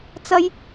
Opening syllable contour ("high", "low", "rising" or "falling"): high